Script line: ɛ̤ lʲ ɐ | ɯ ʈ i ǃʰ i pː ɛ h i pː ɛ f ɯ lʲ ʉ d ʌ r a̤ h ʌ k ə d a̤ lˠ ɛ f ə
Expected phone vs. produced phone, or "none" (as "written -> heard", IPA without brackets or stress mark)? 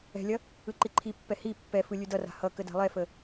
ʈ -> ǃ